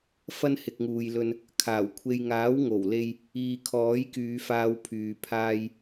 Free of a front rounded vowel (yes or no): no